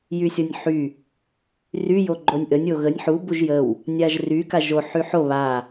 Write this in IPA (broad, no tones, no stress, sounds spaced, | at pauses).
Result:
j y sʲ ɔ nʲ ħ y | r y j o ɡ͡ǃ o nʲ ʔ ə nʲ o ɣ ə nʲ ħ u b u ʒ j ə w | nʲ a ʒ r y k a ʒ o ħ y ħ o β a